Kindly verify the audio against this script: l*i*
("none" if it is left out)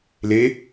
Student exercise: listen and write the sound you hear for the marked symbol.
e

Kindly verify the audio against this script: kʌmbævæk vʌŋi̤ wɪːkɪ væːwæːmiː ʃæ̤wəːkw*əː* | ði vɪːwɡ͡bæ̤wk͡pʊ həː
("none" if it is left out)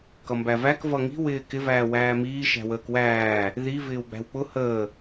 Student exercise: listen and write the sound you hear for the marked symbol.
æː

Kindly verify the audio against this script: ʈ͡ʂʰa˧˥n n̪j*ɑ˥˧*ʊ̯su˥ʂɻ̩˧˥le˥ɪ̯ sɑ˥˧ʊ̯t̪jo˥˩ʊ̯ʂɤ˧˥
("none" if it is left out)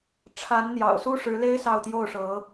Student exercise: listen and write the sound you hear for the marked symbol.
ɑ̰˨˩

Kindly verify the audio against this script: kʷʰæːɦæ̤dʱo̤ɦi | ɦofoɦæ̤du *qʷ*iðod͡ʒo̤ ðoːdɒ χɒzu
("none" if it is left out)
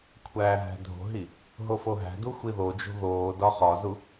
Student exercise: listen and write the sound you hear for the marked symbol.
xʷ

